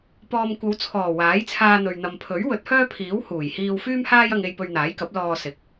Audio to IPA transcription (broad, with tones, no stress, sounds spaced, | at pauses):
p ɔː˨ m kʷ ɐ˨˧ w t͡sʰ ɔː˨˩ w aː˨˥ j t͡sʰ aː˧ n̪ ɵ˨ ɥ n̪ ɐ˨ m pʰ ɵ˨˥ ɥ w ɵ˨˥ t̚ h œː˥ pʰ iː˨˥ w h uː˨˩ j h iː˧ w f yː˥ m h aː˥ j ɐ˧ ŋ e˧ j p ɵ˧ ɥ n̪ aː˨˥ j k ɐ˨˥ p̚ l ɔː˧ s ɪ˨ k̚